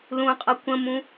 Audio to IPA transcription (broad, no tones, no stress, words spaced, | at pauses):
lũqʼʌ kʷə̃mũ